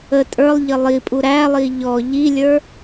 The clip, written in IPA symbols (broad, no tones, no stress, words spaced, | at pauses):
ə tʼə˞lˠ ʎəlˠipʼu ɾælˠi ʎɔ ʎilʲə˞